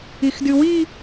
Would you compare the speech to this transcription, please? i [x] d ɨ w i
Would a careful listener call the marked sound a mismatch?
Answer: no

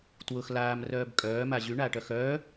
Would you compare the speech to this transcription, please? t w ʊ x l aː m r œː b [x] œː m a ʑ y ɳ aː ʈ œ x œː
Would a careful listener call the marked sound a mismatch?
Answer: yes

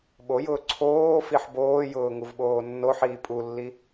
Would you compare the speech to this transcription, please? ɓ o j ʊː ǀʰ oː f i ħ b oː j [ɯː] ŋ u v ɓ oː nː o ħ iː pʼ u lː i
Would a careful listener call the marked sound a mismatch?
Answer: yes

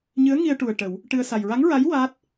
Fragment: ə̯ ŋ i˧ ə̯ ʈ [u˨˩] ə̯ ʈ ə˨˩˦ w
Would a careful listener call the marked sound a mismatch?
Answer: no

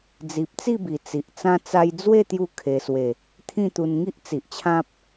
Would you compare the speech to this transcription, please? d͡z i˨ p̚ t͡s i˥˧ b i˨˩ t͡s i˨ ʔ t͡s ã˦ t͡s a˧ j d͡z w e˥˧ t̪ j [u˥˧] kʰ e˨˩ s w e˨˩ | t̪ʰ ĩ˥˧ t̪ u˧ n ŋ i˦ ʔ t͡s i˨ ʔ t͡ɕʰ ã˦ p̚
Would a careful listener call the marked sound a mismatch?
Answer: no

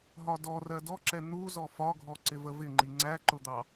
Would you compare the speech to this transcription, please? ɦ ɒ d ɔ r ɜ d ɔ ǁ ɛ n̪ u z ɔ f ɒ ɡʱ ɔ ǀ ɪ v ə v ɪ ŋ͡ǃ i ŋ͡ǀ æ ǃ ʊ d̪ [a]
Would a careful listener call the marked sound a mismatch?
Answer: yes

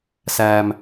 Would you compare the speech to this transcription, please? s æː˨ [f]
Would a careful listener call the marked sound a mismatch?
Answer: yes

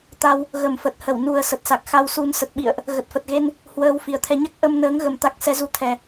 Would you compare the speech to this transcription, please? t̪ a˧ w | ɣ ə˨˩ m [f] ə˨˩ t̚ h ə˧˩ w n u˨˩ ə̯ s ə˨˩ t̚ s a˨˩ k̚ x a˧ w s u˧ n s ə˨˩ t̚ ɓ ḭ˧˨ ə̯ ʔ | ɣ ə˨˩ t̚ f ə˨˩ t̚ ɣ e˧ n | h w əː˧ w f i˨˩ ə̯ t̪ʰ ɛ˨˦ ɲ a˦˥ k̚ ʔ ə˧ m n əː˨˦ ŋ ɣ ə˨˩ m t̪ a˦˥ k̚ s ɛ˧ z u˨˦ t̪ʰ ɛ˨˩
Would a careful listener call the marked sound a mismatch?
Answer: no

